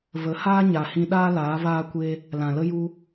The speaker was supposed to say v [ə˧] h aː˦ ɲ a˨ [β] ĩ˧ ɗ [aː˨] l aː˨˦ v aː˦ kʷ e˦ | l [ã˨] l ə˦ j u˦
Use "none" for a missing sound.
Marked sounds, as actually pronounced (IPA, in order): ə˨˦, h, aː˦, ã˨

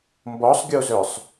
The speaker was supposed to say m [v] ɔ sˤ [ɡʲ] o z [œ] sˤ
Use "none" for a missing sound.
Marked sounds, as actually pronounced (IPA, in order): b, ɡʲ, œ

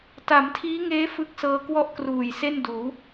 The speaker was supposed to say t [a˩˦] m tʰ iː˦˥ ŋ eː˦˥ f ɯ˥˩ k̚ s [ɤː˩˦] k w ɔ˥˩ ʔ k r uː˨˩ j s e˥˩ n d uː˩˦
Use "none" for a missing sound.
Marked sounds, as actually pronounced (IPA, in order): a˩˦, ɤː˧

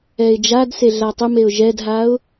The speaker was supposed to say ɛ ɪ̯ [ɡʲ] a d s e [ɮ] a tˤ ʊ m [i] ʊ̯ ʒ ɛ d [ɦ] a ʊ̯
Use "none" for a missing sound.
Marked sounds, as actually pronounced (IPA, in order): d͡ʒ, ɮ, e, ɦ

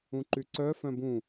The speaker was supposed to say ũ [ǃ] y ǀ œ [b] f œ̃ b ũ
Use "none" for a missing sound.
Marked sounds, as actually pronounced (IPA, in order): ǃ, none

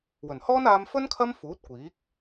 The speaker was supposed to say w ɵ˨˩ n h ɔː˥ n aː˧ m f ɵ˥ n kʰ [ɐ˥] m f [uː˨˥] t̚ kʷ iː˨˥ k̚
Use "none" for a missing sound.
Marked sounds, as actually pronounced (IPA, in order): ɐ˥, uː˨˥

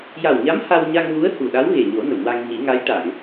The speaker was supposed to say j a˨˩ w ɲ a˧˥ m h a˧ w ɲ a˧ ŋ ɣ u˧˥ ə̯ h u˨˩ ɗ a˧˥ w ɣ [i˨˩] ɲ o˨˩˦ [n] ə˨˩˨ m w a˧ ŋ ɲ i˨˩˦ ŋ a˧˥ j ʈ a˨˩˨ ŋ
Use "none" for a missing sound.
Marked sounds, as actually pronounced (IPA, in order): e˨˩, n

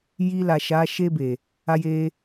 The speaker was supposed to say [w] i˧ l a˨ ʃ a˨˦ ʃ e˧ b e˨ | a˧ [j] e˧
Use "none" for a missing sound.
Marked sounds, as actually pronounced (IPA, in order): j, j

